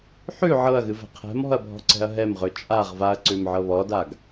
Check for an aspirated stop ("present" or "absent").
present